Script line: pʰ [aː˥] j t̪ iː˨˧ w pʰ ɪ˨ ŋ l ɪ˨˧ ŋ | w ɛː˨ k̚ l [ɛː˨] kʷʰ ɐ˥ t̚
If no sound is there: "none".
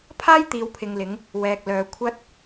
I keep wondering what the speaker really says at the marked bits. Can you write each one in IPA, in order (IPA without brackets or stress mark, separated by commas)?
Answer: aː˥, œː˨